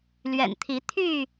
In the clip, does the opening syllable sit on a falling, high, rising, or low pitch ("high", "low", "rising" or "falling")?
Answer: low